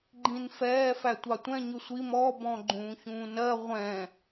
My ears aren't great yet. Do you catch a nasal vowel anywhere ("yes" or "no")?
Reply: yes